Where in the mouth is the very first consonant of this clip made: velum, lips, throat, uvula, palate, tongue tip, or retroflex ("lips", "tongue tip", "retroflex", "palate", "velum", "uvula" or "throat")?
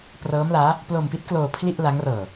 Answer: lips